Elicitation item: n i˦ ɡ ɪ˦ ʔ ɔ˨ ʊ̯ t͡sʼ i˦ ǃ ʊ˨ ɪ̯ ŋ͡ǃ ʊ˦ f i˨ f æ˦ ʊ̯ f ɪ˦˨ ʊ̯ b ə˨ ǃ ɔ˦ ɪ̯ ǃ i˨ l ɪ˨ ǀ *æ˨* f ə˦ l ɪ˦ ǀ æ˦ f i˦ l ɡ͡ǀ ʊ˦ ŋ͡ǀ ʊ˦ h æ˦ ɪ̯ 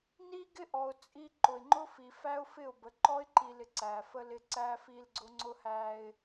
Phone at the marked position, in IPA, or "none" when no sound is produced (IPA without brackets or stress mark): æ˨